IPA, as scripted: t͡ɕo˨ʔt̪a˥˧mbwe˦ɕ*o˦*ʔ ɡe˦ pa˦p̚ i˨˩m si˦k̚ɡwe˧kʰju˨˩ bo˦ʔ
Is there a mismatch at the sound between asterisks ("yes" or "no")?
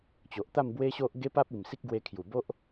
no